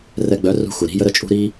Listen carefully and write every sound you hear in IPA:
rɛ˧ɡ͡bœ˨˦rṳ˧ xu˨ɾi̤˦jə˦ ɾə˦t͡ʃʼṳ˦ɾi˦

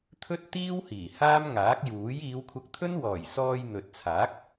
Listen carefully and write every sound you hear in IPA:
t̪ʰɵ˥t̚t̪iː˥whiː˨˩ haː˥mŋaː˨˥k̚juː˨˥j iː˨˧wkʷʰɐ˧k̚t̪ʰɵ˥nwɔː˨˩j sɔː˧j n̪ɵ˨t̚t͡sʰaː˨˥k̚

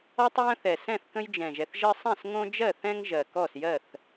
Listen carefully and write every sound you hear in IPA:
ɔ˦tˤjə̃˦ θɛ˨˩sɛ̃˥˩θkə̃˦j d͡ʒɛ̃˨˩ʒɛ˨˩θʒɜ˦sˤɛ̃˥˩s ŋõ˦d͡ʒɜ˥˩θɛ̃˦ŋ ʒɜ˨˩kɔ˥˩sjɜ˥˩θ

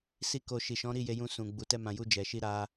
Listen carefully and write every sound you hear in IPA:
si˦ko˧ ʃi˨ʃɔ̃˨˦ɾi˦˨ je˧jũ˧sũ˨ ɡ͡bu˨tɛ˧mã˨ju˧ d͡ʒɛ˨ʃi˧ ɾa˧

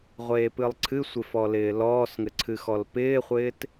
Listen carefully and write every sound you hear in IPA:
ʁʷeːpɨlˠǀʰɨsʷɪ fɔlɪːlɔːsŋɘ ǀʰɨxɔlpɪːχʷɪːt

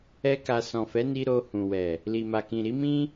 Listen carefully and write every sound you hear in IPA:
ɛ˦ka˧ sɔ̃˨fɛ˨˦ni˧ ɾo˧hũ˨wɛ˨ | li˨ma˨kĩ˨ ɾi˨˦mĩ˦

